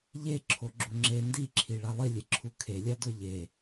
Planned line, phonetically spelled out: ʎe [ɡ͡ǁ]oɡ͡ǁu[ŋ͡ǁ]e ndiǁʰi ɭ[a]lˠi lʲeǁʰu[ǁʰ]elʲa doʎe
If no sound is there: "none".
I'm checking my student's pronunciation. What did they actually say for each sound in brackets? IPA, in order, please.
ǁʰ, ŋ͡ǁ, a, kʰ

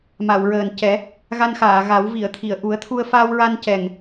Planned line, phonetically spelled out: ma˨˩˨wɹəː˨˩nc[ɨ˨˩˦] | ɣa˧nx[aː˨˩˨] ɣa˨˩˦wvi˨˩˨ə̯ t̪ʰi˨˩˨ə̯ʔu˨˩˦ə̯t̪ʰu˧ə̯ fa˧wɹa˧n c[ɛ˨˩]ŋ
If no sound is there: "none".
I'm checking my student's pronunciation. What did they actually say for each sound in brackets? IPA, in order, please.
ɛ˨˩˦, aː˨˩˨, ɛ˨˩

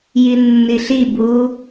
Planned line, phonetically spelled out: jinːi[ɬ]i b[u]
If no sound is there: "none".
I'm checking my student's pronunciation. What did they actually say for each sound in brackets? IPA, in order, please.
ɬ, u

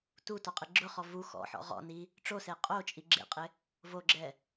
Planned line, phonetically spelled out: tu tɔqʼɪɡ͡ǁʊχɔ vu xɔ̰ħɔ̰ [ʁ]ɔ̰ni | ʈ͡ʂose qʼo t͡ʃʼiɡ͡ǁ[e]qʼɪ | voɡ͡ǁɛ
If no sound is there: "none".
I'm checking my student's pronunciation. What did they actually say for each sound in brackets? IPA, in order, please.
ʁ, ḛ

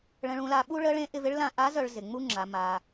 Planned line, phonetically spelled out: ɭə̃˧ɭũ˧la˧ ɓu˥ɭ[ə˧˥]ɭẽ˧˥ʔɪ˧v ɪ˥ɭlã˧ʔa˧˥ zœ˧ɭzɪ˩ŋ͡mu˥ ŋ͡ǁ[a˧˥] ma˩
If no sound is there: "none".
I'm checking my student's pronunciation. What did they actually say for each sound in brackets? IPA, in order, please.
ə˧˥, a˩˧

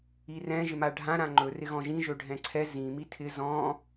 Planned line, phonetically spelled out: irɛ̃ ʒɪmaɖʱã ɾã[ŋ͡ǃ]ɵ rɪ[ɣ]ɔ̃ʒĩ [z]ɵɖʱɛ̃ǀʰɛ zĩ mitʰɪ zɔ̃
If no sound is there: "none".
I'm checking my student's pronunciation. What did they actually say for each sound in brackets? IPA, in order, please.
ŋ͡ǃ, ɣ, ʒ

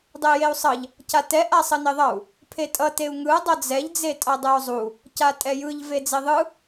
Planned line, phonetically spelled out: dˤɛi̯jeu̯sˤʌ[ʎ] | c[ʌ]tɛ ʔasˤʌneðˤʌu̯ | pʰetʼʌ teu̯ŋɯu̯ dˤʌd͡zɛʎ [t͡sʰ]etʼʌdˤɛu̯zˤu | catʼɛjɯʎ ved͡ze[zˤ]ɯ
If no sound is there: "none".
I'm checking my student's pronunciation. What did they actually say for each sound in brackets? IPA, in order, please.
ʎ, a, d͡z, ðˤ

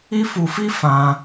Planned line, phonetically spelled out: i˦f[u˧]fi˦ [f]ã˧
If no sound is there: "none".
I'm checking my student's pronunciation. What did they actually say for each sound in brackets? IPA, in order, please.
u˧, f

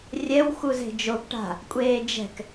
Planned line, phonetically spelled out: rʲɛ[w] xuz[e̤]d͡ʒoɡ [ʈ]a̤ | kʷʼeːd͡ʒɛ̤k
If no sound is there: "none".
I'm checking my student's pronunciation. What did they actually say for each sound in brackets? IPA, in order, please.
w, e̤, ʈ

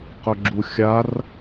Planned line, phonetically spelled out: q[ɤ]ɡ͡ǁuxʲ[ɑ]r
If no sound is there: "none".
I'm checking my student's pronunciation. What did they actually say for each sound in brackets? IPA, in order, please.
ɵ, a

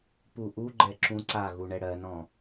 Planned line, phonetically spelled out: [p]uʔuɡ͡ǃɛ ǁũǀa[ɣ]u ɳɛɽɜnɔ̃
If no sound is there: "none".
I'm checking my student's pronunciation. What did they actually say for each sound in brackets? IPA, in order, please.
p, ɣ

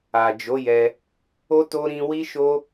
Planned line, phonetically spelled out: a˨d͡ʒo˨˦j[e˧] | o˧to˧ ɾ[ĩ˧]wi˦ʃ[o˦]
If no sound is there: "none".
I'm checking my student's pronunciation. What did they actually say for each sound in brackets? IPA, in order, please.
ɛ˧, ĩ˧, o˦

